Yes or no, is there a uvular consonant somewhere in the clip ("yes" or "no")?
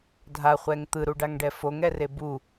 yes